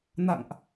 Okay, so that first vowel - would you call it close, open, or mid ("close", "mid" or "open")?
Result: open